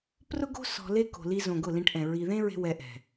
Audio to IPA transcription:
p r ʊ˦ ɡ o̤˦ s ɔ̤˧ l e˦ k o̤˨ l i˧ z õ˨ ɡ ʊ˦˨ l ĩ˧ ʈ ʔ ɛ̃˨ ɹ i˨ ð ẽ˦ ɹ e̤˧ w ɛ˧ ʔ ɛ̤˨

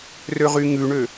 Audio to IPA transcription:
r ø ʁ y ŋ ʉ ɳ ø

